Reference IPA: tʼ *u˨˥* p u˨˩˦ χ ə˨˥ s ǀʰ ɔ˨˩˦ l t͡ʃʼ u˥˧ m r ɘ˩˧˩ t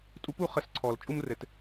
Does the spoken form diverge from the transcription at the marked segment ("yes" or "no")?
no